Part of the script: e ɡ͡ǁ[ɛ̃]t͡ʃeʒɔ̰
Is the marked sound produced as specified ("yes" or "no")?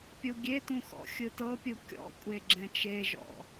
yes